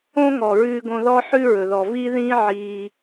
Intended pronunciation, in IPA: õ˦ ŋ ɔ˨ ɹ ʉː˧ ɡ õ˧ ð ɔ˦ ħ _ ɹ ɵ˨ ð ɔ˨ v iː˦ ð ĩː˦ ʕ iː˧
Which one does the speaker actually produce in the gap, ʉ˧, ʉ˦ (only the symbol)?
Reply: ʉ˦